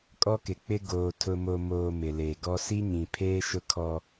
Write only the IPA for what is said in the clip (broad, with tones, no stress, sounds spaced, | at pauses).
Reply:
kʼ ɔ˦ k ɪ˨ k͡p ɪ˦ ɡ oː˨ tʰ ʊ˨ m o˨ m oː˨ m ɪ˨ l e˨ ɡ ɔ˦ s i˦ ɲ ĩ˨ pʰ eː˦ ʃ ʊ˦ kʰ ɔ˦